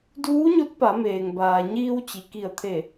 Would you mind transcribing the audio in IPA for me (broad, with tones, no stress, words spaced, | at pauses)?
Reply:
duː˧˥ɲo˧˥t̚pa˩˧meː˩ŋ baː˩ɲiː˧w t͡ɕi˩ki˧˩ə̯t̪ʰe˧˩